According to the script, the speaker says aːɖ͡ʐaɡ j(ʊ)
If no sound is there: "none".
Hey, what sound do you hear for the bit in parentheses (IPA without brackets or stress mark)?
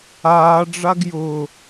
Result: ʊ